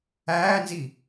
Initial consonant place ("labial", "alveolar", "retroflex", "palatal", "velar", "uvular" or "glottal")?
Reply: alveolar